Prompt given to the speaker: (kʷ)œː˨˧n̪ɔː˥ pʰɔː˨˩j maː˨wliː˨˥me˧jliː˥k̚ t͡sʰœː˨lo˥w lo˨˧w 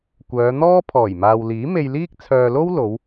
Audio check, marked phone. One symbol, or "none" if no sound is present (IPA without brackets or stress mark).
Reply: kʷ